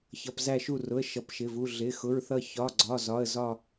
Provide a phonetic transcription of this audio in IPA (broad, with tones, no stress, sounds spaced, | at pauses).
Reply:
ç ʌ˧˥˧ p z æ˥˧ ʃ u˥˧ r ʊ˧˥˧ ə̯ ʃ ʌ˧˥˧ p ʃ ɪ˧˥˧ v u˧˥˧ ɮ ɪ˧˥˧ x ʊ˧˥˧ ɹ θ ʌ˥˧ ç ɒ˧˥˧ ɡ͡ǀ ɒ˧˥˧ z ɒ˧˥˧ ə̯ z ɒ˥˧